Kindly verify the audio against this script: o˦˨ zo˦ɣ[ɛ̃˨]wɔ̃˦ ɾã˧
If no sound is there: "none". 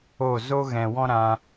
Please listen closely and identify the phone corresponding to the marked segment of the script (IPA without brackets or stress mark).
ɛ̃˨